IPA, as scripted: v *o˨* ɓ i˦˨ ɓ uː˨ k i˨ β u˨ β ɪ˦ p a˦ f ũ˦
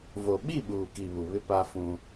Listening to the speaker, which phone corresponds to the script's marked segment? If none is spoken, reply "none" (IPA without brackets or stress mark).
o˨